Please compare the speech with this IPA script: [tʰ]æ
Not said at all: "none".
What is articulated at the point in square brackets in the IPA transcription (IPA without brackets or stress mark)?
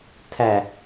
tʰ